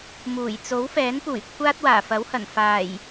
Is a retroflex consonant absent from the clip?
yes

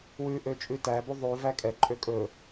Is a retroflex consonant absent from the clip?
yes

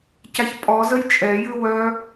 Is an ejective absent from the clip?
no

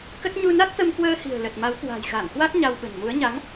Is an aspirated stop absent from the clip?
yes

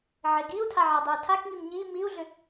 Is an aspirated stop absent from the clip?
no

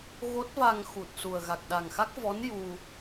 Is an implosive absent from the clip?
no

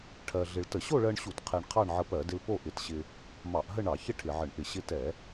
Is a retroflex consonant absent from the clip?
no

